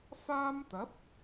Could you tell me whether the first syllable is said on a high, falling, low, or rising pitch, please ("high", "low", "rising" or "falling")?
high